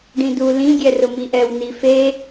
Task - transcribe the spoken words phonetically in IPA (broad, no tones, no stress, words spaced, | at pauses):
ɖĩdu lĩ ɡʲɛrʊmiʔɛw nife